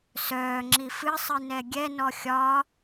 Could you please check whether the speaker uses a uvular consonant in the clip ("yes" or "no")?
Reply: no